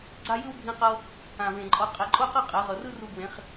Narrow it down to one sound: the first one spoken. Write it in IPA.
ɡ͡ǀ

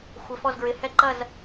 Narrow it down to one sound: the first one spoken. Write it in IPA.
xʷ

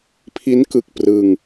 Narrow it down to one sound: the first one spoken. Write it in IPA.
pʰ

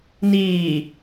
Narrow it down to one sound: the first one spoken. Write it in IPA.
n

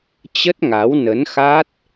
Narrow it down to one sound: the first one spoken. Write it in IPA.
t͡ɕ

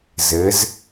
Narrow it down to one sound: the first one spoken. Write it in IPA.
z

